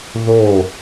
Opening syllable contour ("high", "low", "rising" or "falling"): falling